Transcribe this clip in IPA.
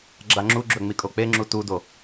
ɡ͡ǁ a ŋ͡ǁ u ɡ͡ǁ ɵ ŋ͡m i kʼ o k͡p e ŋ͡ǁ u t u d o

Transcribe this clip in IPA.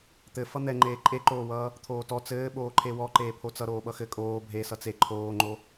t̪ ɘ f ʌ n̪ ɛ ŋ͡ǃ eː ǃʼ e ǃ oː w ʌː | t̪ʰ oː t ɔ t͡s ɘː ɓ oː ǃʰ e w ɔ ǃ eː pʰ o t͡s ʌ ɾ oː ɓ ʌ x ɘ kʼ oː bʱ e s ʌ t͡s e ǃʰ oː ŋ͡ǃ o

